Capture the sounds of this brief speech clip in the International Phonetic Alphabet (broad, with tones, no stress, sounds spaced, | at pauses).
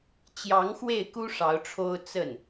t͡ɕ j ɑ˧˥ ŋ x w e˥˩ ɪ̯ k u˥ ʂ ɑ˧˥ ʊ̯ ʈ͡ʂʰ o˥ ʊ̯ t͡s ə˥˩ n